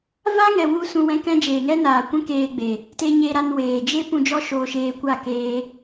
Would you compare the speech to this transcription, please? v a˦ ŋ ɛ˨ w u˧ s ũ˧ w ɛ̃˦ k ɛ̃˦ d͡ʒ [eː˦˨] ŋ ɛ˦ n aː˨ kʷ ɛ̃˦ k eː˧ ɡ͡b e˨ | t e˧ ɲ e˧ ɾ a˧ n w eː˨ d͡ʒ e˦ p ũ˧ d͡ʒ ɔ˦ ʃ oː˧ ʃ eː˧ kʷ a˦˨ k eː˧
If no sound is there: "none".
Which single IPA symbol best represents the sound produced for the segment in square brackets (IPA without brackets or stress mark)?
eː˨